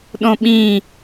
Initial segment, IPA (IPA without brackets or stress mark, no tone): ɗ